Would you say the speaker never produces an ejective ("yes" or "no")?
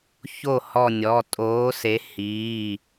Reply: no